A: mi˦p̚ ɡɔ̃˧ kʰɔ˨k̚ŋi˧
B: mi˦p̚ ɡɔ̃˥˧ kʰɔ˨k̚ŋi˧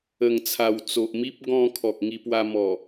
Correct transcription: A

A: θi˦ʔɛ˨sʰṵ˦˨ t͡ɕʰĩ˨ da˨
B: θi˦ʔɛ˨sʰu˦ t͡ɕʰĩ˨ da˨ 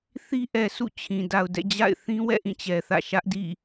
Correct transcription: A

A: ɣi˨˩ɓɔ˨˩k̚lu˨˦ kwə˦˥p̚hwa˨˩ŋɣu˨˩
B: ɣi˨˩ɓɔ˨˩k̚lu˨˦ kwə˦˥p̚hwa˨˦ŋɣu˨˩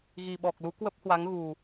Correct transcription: B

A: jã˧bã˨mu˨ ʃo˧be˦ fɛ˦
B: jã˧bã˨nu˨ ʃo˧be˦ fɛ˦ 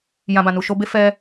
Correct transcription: B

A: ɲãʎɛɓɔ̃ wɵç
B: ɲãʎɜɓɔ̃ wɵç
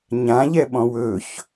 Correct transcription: A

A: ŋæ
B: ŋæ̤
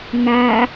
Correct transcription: A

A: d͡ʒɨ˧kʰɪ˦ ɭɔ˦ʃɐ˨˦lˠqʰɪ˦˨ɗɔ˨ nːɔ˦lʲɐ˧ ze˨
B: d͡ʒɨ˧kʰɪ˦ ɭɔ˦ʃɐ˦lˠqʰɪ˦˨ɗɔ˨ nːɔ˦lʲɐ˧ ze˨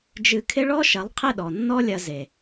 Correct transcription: A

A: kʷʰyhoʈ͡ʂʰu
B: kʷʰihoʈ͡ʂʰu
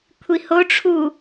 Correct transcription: B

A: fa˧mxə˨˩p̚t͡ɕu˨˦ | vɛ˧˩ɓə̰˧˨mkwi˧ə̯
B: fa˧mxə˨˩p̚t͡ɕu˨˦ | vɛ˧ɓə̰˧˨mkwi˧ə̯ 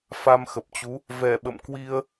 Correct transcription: A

